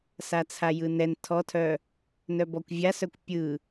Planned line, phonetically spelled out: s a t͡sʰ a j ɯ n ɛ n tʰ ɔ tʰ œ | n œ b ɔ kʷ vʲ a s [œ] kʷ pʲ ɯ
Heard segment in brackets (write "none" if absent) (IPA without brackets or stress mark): œ